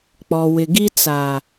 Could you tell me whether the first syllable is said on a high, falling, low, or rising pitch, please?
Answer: low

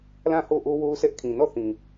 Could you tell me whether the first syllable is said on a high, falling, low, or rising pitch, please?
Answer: falling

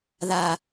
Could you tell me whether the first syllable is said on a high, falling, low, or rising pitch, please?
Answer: low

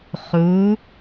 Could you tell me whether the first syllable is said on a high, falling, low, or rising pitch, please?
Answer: rising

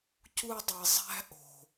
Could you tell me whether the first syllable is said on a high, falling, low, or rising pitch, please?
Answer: high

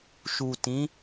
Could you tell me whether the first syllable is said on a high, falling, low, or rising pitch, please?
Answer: low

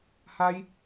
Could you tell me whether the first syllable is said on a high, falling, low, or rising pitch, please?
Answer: high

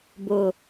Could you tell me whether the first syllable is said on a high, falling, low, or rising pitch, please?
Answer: low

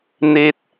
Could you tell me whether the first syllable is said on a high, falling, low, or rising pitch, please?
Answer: low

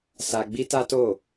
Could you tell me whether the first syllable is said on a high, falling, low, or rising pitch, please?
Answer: high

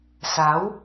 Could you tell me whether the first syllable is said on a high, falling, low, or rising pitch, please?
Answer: rising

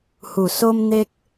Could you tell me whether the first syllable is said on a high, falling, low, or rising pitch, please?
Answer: low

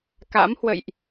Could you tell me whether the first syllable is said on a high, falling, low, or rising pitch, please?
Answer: rising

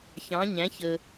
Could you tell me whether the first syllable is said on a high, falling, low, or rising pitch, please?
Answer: rising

